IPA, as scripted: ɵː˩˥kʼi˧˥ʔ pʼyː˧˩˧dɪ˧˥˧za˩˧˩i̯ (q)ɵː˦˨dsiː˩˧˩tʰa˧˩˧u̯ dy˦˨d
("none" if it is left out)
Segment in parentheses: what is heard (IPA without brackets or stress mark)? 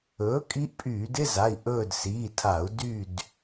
ʔ